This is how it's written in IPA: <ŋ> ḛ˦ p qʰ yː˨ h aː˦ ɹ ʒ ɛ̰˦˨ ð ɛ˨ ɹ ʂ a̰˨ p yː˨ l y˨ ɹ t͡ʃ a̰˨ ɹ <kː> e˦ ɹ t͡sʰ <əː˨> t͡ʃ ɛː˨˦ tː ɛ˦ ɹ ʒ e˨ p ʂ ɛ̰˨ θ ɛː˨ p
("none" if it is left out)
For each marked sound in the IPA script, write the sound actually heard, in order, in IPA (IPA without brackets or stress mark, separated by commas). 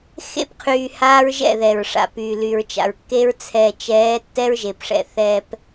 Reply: x, kː, ɛː˨